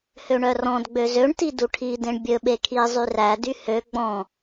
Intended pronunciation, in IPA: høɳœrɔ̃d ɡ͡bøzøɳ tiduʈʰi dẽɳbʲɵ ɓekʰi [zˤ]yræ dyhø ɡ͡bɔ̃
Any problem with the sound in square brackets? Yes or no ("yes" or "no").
no